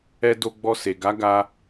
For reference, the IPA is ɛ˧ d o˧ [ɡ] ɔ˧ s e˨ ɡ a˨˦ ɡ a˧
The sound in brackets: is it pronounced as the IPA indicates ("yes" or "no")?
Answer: no